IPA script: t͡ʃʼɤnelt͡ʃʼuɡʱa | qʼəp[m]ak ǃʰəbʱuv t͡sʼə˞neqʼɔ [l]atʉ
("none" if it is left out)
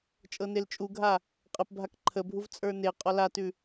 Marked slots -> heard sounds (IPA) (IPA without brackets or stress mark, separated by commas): bʱ, l